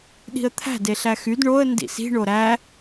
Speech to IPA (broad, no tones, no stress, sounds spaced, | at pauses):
ɗ i̤ ə̯ t̪ʰ æ̤ d e ɬ æ x y d ɳ o ə̯ n d ḭ s i̤ ɳ o ɾ æ